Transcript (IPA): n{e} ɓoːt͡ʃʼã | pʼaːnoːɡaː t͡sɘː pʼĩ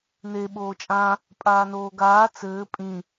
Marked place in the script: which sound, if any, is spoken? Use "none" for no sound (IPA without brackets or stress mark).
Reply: e